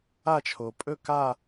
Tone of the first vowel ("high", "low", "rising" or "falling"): falling